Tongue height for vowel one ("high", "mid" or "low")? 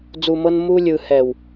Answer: high